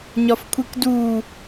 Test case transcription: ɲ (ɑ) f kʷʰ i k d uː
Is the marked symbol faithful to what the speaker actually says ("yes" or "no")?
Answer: no